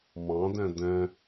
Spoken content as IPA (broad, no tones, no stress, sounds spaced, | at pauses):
m ɑ̃ d ɛ̃ d ɛ̃